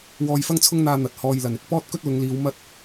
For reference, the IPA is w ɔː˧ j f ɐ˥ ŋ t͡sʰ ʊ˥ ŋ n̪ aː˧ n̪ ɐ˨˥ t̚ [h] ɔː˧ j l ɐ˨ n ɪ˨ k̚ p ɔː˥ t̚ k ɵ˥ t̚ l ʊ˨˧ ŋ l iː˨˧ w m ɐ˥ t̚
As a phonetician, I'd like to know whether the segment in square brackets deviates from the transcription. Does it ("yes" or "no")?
no